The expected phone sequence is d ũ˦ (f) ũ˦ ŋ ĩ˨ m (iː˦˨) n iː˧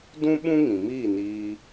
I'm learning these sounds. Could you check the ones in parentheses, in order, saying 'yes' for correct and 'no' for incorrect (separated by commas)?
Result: no, yes